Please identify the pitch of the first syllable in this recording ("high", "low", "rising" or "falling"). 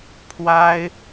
high